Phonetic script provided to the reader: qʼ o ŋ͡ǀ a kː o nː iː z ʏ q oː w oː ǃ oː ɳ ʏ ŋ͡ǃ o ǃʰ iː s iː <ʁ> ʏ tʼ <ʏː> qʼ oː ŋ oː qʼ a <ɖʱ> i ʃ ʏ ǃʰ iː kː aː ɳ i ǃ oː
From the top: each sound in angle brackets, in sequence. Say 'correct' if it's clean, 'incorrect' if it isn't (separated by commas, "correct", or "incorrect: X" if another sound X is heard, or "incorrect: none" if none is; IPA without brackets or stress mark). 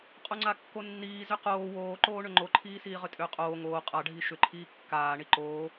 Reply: correct, correct, correct